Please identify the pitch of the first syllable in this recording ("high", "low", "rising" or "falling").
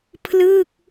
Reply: falling